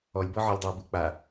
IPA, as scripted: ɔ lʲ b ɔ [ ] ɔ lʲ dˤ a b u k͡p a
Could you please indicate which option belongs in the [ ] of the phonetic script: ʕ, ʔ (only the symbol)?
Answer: ʕ